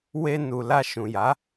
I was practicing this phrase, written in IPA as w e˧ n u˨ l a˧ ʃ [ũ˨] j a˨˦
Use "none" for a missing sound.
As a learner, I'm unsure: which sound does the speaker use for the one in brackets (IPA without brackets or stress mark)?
ũ˨